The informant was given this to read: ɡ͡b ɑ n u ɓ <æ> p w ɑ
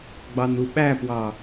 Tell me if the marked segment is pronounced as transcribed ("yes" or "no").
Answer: yes